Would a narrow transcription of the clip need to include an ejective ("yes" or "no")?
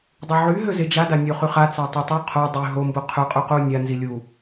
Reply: yes